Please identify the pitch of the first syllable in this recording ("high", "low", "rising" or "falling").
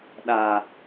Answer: low